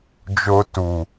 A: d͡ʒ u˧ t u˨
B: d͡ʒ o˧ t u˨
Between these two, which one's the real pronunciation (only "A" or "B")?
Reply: B